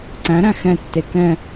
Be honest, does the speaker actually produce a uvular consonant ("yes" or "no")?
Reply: no